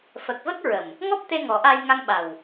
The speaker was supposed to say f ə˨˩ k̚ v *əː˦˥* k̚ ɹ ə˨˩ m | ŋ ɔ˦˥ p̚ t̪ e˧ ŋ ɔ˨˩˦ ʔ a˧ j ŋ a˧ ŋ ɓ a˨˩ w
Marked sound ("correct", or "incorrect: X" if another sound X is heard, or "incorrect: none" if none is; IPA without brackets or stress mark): incorrect: ə˦˥